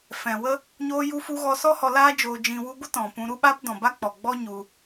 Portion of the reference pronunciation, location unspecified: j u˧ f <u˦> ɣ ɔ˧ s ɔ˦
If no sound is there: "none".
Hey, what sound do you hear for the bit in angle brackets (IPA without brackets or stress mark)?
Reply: u˧